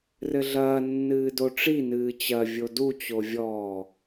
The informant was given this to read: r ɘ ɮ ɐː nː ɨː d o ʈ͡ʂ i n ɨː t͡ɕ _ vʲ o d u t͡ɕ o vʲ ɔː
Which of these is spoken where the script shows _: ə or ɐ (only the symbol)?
ɐ